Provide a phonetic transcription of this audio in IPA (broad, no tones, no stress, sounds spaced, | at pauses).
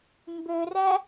m b ø r æ